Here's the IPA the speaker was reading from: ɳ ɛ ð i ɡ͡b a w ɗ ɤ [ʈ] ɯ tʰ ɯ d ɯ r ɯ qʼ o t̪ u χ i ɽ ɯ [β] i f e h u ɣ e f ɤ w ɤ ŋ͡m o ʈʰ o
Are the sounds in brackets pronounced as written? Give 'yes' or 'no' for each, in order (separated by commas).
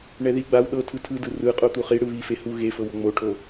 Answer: no, yes